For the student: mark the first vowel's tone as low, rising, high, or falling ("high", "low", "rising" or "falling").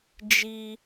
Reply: high